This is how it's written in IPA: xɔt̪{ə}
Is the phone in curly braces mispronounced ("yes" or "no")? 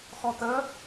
no